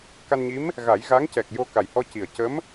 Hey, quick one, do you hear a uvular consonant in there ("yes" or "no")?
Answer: no